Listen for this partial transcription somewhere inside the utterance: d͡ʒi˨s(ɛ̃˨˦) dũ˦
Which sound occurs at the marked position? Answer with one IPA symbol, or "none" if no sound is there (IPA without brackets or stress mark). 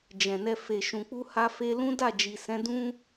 ɛ̃˨˦